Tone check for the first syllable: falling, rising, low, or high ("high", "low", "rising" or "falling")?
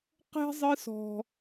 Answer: high